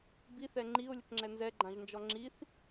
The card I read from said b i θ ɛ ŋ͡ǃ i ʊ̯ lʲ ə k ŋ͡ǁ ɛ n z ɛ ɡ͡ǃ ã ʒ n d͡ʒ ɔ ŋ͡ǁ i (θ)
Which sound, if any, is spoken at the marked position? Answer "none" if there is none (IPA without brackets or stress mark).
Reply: θ